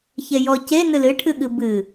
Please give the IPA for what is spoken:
çejɔ ce nɨlɨ ʈʰɨɠɨbɨ

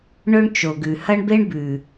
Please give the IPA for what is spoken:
ɳɵ˦ɳt͡ʃo˨ɡʉ˨ hɐ˦ɳbe˦ɳbʉ˨

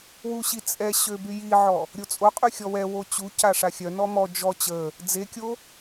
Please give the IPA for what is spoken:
wuɕi t͡sʼɛɕø byjiʕɔ | ɾʲot͡sʼoqʼy xʲɔwɛwo t͡ɕuca ʂaxʲœnɔ mɔ d͡ʒɔ t͡ɕə | d͡zekʲo

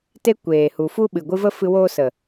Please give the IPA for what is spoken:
te˧ kʷeː˨hu˨ fu˦ɓɨ˨ɡʷɨ˦və˦ fɨ˧woː˦sə˨

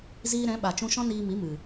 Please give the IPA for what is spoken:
ziː˧ɾɛ̃˨˦ɓa˨ t͡ʃũ˧ʃɔ̃˦niː˧mi˨˦ mɨ˨

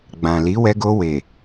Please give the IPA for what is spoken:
ɡ͡bã˨ li˨˦wɛ˧ɡo˧ we˨

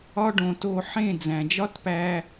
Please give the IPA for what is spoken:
ɒ˧ɖõ˨ to˧ħẽ˦˨ d͡zæ̃˨d͡ʒɒ˦tpæː˧

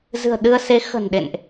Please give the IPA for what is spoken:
zɨ̤˨˩ə̯ɗɨ˧ə̯se˨˦ xə̤˨˩nɗḛ˧˨nʔ

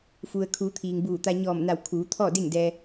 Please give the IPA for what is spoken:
fu˩ə̯kʰuː˩˧ t̪ʰiː˩ŋbuː˧˩t̪a˧ ɲɔː˧˩mna˧˩w kʰuː˩˧t̪ʰɔː˥˨de˥˨ŋdɛː˧

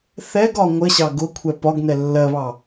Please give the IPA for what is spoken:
θɛɡɒ ŋʷəɕɑ ɡʊkʷʰɛ pɒɡnɛ lːɜβɑ

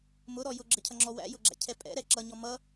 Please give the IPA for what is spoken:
mʊɾɔ jʊɡ͡ǁəcʰʌŋ͡ǁɔ wæ̰jʊɡ͡ǁæ̰cʰɛ pʼɛ̰ɾɛ ǁʌɲɔ mʌ

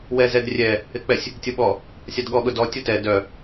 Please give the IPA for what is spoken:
wɛzɛdrʲɛ | ɪk͡pɛsʲ | tʲʊɓɔ | sʲadɠɔ ɠʊdɔ tʲʊtɛ dœ

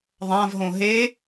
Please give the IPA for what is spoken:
ðˤãv ɦõɦe

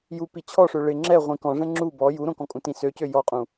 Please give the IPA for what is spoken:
ju pit͡ɕʰɔʂø ɭɪ ŋ͡ǁɛ ʁʷĩkɔ̃ʐɛ̃ ŋ͡ǁu bɔ juɾõkɔ̃ kʼũtĩsøcø jɔqʼũ

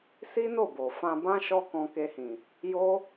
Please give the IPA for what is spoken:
si˦no˦˨bo˨ fã˧bã˦ ʃɔ˦kɔ̃˧ke˧hĩ˨ | jo˦

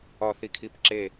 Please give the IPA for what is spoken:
ɒ θikʰipǁe

